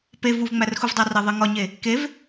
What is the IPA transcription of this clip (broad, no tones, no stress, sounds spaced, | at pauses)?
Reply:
p e v u v ŋ͡m æ r x u v dˤ æ r e ðˤ i ŋ ɒ ɲ e | k e v